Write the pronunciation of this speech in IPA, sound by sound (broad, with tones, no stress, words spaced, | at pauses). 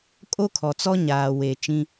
kʼo˦kʰɔ˨t͡sɔ˦ ɲaː˨ we˨ t͡ʃĩ˦